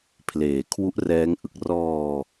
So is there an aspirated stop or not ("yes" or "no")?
yes